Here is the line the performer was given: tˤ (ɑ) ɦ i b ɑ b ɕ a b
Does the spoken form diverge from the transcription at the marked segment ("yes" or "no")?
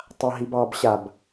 yes